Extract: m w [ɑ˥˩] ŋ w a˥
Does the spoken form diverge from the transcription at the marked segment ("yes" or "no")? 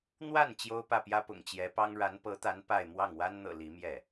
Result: no